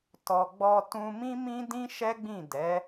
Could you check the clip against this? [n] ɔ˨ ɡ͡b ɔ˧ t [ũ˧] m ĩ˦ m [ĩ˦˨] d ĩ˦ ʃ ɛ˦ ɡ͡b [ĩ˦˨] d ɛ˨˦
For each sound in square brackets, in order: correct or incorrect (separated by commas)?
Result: incorrect, correct, incorrect, correct